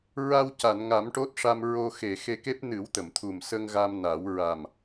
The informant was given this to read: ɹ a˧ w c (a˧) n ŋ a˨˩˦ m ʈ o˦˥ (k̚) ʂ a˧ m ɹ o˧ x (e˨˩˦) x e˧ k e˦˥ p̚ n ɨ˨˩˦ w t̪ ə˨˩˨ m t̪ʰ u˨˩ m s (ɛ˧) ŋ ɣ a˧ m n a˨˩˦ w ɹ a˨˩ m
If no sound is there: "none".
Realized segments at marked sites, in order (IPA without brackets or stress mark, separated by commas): a˨˩˨, t̚, e˨˩, ə˧